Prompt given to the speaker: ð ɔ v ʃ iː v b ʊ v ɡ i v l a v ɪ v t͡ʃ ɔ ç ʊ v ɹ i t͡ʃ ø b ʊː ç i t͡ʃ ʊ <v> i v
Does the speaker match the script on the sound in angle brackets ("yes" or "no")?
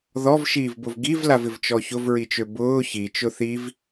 no